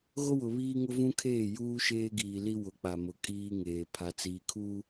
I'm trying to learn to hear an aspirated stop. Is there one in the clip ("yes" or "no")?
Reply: yes